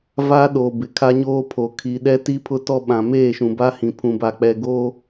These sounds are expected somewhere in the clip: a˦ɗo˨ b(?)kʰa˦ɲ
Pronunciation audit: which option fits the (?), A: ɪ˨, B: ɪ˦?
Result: A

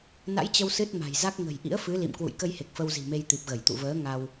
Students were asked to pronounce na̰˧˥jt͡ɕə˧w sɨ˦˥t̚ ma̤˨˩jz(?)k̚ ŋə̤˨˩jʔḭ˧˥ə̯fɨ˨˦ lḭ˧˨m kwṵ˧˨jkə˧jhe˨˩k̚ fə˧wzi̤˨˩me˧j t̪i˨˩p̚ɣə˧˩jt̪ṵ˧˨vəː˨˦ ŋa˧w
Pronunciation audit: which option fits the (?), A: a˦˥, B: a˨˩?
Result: A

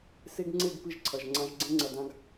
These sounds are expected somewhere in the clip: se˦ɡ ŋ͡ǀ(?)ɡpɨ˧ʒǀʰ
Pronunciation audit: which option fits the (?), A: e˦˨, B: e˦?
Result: A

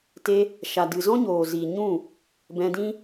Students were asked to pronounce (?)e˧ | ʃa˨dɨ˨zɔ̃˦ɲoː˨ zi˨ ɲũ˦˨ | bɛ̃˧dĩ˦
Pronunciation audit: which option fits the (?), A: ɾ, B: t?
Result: B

